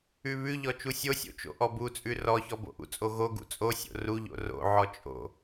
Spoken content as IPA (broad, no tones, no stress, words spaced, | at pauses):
ʉβʉʎɔ t͡ʃusʲosʲo̰ t͡ʃo̰ʔɔbut͡sʼʉ rɔçɔ bo̰ʔṵt͡sʼo ɣo ɡṵt͡sʼosʲo̰ ruʎo̰ ro̰ʕɔ t͡ʃʼo̰